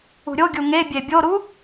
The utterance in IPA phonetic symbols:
ṳɾʲoɡʲu ŋe bʲebʲoɾu

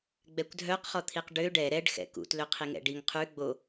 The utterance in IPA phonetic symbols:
ɡ͡bɛkʷdʱœqχɔt̪ʰiq ɖø ɖɛ ɾɛɖxɛ̰ kṵtlø qʰiŋɛ̰ɖiŋ qʰʉ ɡ͡bo

